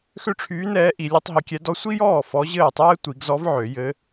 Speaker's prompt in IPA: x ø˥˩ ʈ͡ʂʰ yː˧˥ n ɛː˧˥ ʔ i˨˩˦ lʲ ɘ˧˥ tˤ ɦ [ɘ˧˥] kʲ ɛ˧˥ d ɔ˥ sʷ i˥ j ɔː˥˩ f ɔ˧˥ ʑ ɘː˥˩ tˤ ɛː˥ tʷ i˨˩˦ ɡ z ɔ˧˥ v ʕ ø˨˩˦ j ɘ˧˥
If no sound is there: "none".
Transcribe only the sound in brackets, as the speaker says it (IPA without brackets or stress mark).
ɘ˧˥